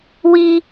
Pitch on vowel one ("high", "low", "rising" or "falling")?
high